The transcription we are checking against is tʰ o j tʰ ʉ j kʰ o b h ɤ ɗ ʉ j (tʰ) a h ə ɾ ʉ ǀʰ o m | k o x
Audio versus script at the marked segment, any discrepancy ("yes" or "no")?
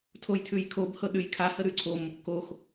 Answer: yes